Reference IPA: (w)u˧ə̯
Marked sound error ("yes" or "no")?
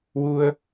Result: no